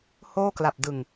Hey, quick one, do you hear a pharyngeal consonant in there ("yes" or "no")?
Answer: no